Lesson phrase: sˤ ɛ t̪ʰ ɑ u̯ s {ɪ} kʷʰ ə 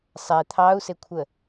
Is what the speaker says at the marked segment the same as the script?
yes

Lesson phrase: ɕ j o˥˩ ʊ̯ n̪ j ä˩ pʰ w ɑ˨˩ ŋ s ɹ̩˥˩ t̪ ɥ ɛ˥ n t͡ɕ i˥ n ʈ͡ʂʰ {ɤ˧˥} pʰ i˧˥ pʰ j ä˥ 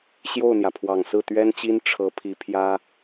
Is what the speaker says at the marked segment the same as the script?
yes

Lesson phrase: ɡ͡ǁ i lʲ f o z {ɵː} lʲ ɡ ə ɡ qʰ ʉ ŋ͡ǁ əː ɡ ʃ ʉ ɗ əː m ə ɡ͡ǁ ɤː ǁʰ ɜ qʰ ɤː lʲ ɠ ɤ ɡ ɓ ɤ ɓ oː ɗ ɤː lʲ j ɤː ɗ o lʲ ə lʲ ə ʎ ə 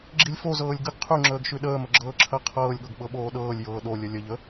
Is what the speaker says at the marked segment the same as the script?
no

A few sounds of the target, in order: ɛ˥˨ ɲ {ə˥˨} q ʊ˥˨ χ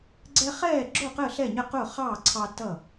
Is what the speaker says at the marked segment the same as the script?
yes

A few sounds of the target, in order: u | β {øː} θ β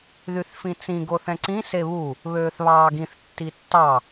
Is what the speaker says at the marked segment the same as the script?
yes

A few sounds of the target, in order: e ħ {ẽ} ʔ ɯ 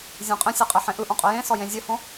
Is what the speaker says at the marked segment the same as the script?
yes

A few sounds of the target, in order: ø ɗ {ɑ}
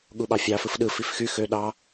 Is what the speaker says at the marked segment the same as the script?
yes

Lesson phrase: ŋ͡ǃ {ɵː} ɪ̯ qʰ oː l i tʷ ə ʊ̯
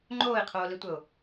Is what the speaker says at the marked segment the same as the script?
no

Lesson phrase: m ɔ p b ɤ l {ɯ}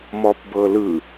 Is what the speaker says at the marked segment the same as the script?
yes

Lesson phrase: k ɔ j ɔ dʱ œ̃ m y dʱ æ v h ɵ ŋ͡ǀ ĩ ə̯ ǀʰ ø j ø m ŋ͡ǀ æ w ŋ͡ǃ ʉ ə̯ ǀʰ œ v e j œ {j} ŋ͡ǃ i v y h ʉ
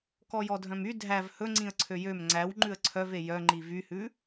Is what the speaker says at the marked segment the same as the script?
no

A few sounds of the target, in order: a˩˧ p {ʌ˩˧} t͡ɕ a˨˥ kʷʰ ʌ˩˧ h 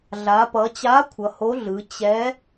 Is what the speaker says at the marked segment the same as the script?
yes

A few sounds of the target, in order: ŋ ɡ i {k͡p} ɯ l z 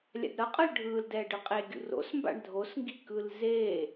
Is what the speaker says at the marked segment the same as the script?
no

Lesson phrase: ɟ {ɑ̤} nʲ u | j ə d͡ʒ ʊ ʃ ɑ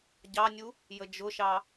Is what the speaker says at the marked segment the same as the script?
no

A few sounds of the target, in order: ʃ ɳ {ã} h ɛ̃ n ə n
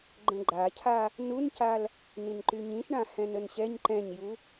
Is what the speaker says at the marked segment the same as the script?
yes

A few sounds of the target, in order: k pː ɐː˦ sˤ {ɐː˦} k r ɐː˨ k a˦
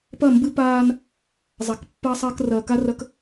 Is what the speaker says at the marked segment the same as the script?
yes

